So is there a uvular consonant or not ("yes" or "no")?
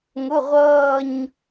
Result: yes